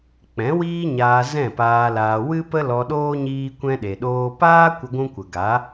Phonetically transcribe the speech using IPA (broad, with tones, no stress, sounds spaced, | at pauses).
k͡p ɛ̃˨˦ w iː˦ ɲ aː˧ z ɛ̃˦˨ p aː˧ l aː˧ w ɨ˦ p ə˦ l ɔ˧ ɗ oː˦ ɲ iː˦ kʷ ɛ̃˦ ɗ e˨ ɗ oː˦ p aː˦ kʷ ə˧ ɡʷ ũ˦ kʷ ə˨ ɡ a˨˦